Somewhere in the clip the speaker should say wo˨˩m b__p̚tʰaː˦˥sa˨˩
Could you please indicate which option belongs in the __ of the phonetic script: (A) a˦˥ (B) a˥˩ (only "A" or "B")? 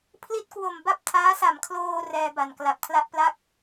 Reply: A